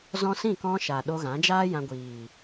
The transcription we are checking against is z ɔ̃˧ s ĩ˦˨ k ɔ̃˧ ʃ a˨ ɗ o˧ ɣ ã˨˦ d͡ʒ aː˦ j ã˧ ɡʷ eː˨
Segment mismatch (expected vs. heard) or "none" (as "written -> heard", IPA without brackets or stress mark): eː˨ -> iː˨